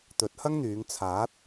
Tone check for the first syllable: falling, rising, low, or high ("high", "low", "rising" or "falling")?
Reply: rising